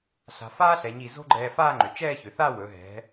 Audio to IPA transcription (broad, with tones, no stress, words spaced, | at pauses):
ɬa̤˩˧faː˥ɬɛ˩˧ɲi˧˩ zo̤˥ɡ͡ǃɛː˧ faː˥˧ŋ͡ǃʏ˩˧t͡ʃɛː˥˧çʏ˩˧ θa˥˧wɵ˩˧ɦɛ̤˩˧